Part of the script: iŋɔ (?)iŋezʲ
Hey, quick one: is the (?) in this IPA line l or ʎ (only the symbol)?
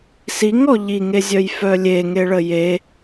ʎ